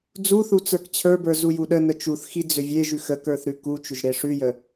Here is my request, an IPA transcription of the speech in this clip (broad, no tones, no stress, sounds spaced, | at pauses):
d͡z u θ u t͡s ə˞ k t͡ɕʰ ə˞ b ə˞ z u j u ɗ ə n ə t͡ʃ u θ x i d͡z ʏ vʲ e ʒ ʉ x ə k ə˞ θ ɾ ʉ k u t͡ʃ ʏ ʒ ɾ e ʂ ʉ j ə